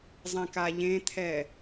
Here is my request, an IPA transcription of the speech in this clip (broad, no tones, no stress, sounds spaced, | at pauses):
zˤ ɛ̃ k a ʎ ẽ t̪ʰ ɛ